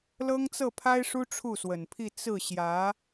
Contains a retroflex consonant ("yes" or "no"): yes